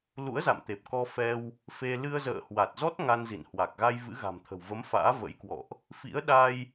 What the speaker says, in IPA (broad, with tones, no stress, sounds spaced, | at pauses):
l ṵ˧˥ ə̯ z a̰˧˨ m t̪ e˨˩ p̚ k ɔ˧ f ɛ˧ w | f e˧ l ɨ˧ ə̯ z ə̰ː˧˨ h w a˨˩ t̚ z ɔ˦˥ t̚ ŋ a˧ n z ḭ˧˨ n h w a˨˩ k̚ ɣ a˧ j v ɨ̰˧˥ ɣ a̤˨˩ m t̪ʰ ə̤˨˩ w v ə˨˦ m f a̰ː˧˥ v ə̰˧˥ j k w ɔ̰˧˨ ʔ | f ḭ˧˥ ə̯ ɗ a˧ j